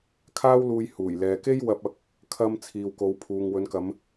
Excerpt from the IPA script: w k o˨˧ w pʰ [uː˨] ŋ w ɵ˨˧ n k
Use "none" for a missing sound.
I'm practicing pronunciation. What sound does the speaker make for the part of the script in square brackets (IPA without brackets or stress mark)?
uː˨